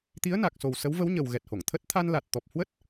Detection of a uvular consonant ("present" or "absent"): absent